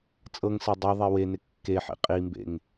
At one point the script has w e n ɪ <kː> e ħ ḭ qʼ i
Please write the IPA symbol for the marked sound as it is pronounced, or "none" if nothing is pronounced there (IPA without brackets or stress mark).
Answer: kː